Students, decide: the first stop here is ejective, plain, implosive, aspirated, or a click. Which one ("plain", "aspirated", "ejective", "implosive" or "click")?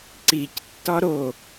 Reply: click